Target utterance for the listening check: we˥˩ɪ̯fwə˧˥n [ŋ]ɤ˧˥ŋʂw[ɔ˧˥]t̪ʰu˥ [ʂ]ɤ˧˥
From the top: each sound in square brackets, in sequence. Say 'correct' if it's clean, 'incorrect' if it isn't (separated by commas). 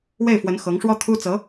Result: incorrect, incorrect, incorrect